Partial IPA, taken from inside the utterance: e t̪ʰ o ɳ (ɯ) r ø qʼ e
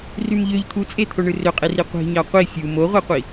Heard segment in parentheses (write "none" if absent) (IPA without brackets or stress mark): ɯ